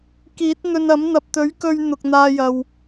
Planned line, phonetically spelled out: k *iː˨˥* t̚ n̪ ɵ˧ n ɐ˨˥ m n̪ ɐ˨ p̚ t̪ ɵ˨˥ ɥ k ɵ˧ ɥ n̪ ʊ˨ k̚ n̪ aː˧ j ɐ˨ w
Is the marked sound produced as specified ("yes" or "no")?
yes